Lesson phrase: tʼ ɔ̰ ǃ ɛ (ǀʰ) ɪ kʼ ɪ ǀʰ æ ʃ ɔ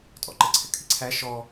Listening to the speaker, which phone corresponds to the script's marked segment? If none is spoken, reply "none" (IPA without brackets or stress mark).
ǀʰ